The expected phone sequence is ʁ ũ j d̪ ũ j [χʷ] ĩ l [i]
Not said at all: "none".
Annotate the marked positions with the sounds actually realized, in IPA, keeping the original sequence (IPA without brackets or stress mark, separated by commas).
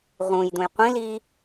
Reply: qʷ, iː